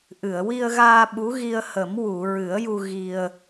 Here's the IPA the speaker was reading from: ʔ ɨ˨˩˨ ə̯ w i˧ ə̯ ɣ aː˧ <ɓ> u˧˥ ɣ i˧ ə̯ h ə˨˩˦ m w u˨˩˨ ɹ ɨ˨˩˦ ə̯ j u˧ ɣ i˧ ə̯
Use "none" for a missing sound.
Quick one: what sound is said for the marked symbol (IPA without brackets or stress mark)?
ɓ